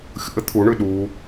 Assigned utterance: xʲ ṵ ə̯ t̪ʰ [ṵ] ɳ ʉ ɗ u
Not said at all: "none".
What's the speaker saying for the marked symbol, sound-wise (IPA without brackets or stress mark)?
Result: u